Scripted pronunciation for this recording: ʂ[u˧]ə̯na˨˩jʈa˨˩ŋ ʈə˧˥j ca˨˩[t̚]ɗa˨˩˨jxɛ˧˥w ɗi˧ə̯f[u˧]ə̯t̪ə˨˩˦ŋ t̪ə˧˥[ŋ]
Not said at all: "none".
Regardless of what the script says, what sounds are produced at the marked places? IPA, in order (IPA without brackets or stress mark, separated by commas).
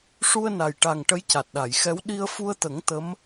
u˧, t̚, u˧, m